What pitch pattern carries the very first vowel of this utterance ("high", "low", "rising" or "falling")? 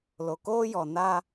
low